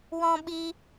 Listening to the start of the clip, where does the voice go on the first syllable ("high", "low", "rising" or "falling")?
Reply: high